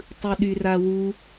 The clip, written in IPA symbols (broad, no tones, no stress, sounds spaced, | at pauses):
tˤ ɯ ɗ y r a w u